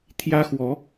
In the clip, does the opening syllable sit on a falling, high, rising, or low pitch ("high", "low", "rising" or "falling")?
high